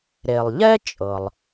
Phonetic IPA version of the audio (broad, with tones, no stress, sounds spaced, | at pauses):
ɾ e˩ lˠ ʎ ɛ˥ t͡ʃʼ ɤ˩ lˠ